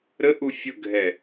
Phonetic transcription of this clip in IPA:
ɾ ə ʔ u fʲ ʊ ɡʱ ɛ

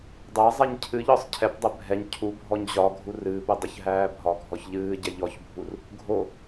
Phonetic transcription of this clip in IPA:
dˤ æ zˤ ɛ ɲ cʰ ɨ ʎ ɒ sˤ cʰ ɛ p dˤ ɛ bʱ ɛ ɲ cʰ u bʱ ɔ ɲ ʑ ɒ ɡʱ u r ɨː p ɘ dˤ ə ç ɦ æː bʱ ɒ ɡʱ ɔ ç ʎ ɨː ɟ ɛ ʎ ɔ ç bʱ u r | ɡʱ o

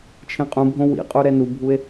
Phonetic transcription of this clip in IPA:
t͡ʃʰ ẽ qʼ ũ bʱ õ w ḭ qʼ u ɾ ɛ n u bʱ u e̯

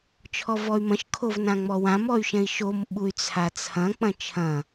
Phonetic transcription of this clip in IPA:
t͡ʃʰ ɔ v ɔ y̯ m ɐ̃ ʃ kʰ o v n ã ŋ͡m ɔ w ã m ɔ y̯ ʃ ɛ̃ i̯ ʃ o m ɓ u y̯ t͡sʰ a t͡sʰ ɐ̃ k͡p ɐ̃ t͡ʃʰ ɐ̃

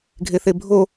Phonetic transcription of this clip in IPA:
ɡʱ e θ e bʱ o

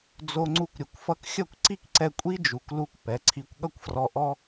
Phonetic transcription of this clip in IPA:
d͡z o˧ ŋ͡ǀ u˧ kʷ ɾʲ ʌ˨ kʷ f ʌ˧ k xʲ ʌ˦˨ kʷ ǀ i˦ k ǀ ɛ˧ kʷʼ i˦ d͡ʒ u˨ k l u˧ kʷ p ɛ˨˦ ǀʰ i˧ kʷ ɠ ʌ˦ kʷ f r ɔ˧ ʔ ɔ˦

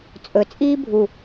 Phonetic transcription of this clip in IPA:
t͡sʼ ɵ t͡sʼ iː bʱ u

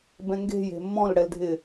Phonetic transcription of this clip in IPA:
b ɛ̃ ŋ ɡ e̤ j e̤ mː ɔ̃ l ɽ ɛ l dʱ ɪː

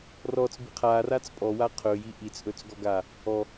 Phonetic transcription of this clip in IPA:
r ɔ t͡s b i qʰ a r a t͡s pʼ ɔ w a qʰ ɵ j i ʔ i t͡s ʔ ɵ t͡s ɡ ɔ ɡ a | ɔ

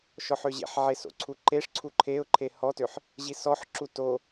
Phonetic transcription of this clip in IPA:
ʃ ɔ ħ ø ʑ ḛ ħ ʕ e s o̰ ǀʰ u ǃ e ʂ ǀʰ u ǃʰ e ʊ̯ ǃʰ e h ɔ t ø ħ | ʑ i s ɔ ħ ǁ u t o

